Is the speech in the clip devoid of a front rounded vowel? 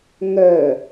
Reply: no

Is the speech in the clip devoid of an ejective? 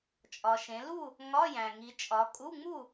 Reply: no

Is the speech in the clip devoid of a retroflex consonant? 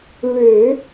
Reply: no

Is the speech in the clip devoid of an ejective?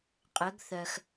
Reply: no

